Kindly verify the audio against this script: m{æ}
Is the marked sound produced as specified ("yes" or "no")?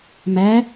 yes